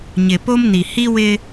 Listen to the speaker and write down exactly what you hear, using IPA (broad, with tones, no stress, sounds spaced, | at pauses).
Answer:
ɲ ɪ˨ p o˦ m n i˨ h i˦ w ɪ˦